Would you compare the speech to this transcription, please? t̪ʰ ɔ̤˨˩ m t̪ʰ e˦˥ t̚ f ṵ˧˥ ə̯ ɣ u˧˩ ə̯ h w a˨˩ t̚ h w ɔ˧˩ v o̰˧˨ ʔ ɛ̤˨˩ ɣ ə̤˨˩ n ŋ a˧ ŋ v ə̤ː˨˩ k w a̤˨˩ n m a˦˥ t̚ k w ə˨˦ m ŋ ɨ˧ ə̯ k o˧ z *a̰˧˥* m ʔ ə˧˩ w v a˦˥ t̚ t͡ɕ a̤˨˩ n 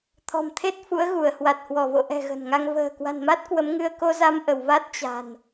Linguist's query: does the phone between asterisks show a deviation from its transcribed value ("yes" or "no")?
yes